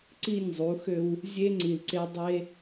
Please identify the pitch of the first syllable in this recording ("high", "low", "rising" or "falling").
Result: falling